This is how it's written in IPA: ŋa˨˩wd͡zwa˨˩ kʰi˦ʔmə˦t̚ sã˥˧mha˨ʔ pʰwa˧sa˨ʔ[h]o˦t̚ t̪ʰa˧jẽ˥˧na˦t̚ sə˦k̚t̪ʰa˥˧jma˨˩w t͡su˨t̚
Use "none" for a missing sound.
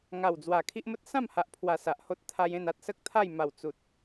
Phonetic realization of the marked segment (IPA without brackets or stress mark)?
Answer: h